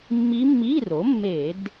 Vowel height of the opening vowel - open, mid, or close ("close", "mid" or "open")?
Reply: close